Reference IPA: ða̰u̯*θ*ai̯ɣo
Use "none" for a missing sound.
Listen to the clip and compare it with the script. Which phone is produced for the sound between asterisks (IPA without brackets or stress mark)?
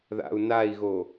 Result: n